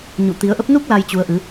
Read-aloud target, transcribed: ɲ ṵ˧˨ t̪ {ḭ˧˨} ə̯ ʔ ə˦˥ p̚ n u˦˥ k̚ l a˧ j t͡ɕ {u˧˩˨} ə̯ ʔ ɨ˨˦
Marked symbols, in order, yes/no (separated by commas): no, no